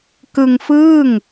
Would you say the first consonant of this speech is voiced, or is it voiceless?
voiceless